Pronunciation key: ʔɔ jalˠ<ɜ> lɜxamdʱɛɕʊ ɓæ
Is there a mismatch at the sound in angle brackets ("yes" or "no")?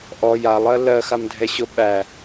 no